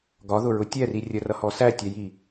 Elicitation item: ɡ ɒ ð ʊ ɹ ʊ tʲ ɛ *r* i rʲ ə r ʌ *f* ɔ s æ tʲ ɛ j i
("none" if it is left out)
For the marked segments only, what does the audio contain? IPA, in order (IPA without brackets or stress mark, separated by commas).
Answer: r, h